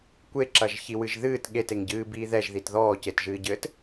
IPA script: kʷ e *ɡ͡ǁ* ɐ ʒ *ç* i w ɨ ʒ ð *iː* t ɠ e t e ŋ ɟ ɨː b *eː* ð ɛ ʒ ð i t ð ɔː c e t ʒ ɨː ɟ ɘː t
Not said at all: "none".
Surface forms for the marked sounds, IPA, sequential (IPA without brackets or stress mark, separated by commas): ǁ, ç, ɨː, iː